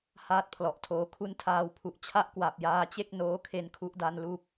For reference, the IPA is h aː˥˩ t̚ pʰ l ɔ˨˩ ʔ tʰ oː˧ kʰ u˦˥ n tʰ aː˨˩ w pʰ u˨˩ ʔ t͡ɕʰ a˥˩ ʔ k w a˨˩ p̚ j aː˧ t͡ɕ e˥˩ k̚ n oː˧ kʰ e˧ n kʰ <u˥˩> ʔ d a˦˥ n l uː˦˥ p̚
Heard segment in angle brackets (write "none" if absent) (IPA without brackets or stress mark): u˥˩